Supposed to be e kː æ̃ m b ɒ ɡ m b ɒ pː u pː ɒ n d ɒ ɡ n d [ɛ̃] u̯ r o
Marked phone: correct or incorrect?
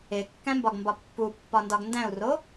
incorrect